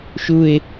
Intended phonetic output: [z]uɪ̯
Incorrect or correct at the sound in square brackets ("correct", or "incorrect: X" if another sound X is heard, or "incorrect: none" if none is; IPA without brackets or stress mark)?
incorrect: ʃ